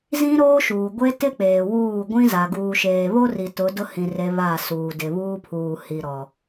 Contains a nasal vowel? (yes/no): yes